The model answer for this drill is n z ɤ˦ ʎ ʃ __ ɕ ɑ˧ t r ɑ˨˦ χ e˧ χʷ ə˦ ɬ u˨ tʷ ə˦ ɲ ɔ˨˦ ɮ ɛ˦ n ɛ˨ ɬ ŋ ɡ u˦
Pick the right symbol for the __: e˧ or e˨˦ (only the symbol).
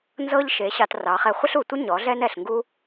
e˨˦